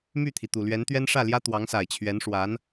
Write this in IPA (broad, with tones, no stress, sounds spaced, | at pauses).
m y˥˩ t̪ʰ i˩ t̪ u˨˩ l ɥ ɛ˧˥ n t̪ ɥ ɛ˥ n ʂ ä˥˩ l j ä˥ t̪ w ɑ˧˥ ŋ s a˨˩ ɪ̯ t͡ɕʰ ɥ ɛ˧˥ n ʂ w a˧˥ n